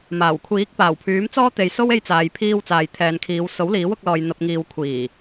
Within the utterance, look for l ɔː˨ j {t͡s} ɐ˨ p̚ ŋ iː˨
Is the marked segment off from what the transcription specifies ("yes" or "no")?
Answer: yes